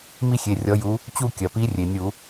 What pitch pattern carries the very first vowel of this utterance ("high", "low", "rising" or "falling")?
high